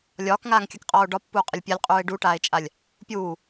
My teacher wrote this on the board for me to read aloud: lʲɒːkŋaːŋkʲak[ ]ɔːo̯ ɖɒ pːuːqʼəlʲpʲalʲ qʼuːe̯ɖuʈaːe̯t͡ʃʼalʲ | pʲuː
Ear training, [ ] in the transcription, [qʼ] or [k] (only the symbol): qʼ